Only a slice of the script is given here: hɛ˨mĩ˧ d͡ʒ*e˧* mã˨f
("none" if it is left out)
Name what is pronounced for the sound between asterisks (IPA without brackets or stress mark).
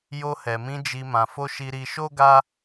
i˧